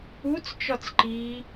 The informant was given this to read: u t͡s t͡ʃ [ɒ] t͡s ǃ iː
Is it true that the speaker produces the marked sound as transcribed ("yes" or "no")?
yes